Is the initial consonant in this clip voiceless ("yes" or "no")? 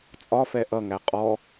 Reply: yes